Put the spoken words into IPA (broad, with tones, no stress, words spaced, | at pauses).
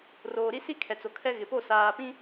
roː˨ɾi˦si˦ kʰɛ˨t͡so˨kʰɛ˦ ɣɪ˨po˦˨ saː˨ pĩ˦